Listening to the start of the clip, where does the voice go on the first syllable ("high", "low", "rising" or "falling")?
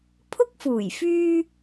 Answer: high